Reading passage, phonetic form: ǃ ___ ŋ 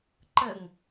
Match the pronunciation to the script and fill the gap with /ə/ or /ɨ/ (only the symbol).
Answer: ə